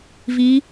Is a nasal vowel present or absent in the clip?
absent